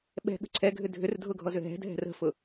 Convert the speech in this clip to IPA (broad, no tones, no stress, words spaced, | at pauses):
ɓɛ̤ɠə̤ ǀʰɛɡʱʏ dʱʏrdʱʊɡʱɔzʏ ɦɛ̤dʱɛ̤r ə̤fʊ